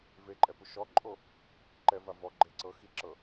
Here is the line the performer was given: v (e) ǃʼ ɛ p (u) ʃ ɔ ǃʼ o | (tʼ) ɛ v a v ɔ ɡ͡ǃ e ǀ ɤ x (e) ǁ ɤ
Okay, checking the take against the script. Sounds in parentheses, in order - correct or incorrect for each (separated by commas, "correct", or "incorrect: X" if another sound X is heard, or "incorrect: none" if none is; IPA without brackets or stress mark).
correct, correct, incorrect: ǃ, incorrect: i